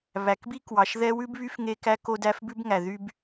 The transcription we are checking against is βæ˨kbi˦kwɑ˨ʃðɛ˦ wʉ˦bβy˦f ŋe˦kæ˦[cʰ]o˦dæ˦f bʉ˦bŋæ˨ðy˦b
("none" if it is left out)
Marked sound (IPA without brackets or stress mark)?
k